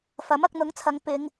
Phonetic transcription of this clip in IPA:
f ɐ˨˥ m ɐ˧ k̚ n̪ ʊ˨˥ ŋ t͡sʰ ɐ˨˧ ŋ p ɪ˨˧ ŋ

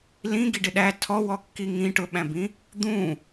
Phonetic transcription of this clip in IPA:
l ĩ ɡ i ɖ ɪ ɗ æ tʰ ɔ w ɔ kː i ŋ ĩ ʈ ʊ ɓ æ̃ b ĩ | d̪ ũ

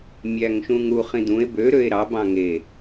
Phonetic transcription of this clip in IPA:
mʲ æ ŋ ʃ ũ ŋ ɾ u χ ĩ d̪ ũ e̯ b ø ɾ ø e̯ ɾ ɑ b ɑ̃ ŋ e

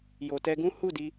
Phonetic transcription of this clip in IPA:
j o˨ t ɛ˧ ɡ ũ˦ h u˦˨ d i˧

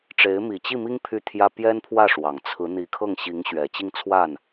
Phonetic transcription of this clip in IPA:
ʈ͡ʂ e˧˥ ɪ̯ m i˨˩ t͡ɕ i˥˩ m i˥ ŋ pʰ y˥˩ t̪ʰ j ä˥ p j ɛ˥ n pʰ w ä˥˩ ʂ w ɑ˨˩ ŋ t͡sʰ ɹ̩˧˥ n̪ i˧˥ kʰ ɤ˥˩ ŋ ɕ i˧˥ ŋ ɕ ɥ ɛ˨˩ t͡ɕ i˥˧ ŋ t͡sʰ w a˥˩ n

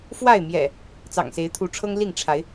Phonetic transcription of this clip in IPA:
f w a˥˨ ɪ̯ m j ɛ̰˨˩ | t͡s ɑ̰˨˩ ŋ s e˨˦ ɪ̯ t̪ʰ u˨˦ ʈ͡ʂʰ ɤ˦ ŋ l i˥˨ ŋ ʈ͡ʂʰ a˨˦ ɪ̯

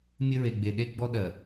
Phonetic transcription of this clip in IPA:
mʲ ɘ˦ ɹ e˨ ɡ͡b e˨ ɗ e˦ ɡ͡b ɔ˦ ɗ ɜ˨

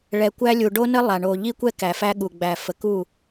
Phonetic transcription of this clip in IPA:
ɭ ɛ˨ kʷ æ˦ lʲ u˨ ɖ o˦ n ə˦ lˠ a˨ ɳ o˨ ʎ i˦ kʷ ɛ˦ k æ˨ f æ˦ ɠ u˨ ɡ͡b æ˨ f ə˨ k u˦˨

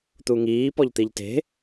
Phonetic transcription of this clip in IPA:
t̪ u ŋ iː p ɔ ʎ t̪ i ʎ t e̤

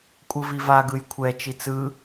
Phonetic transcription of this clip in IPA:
kʷʼ ɯ v i v a ɡ ɯ j kʷʰ ɛ t͡ʃ i t͡s ɯ

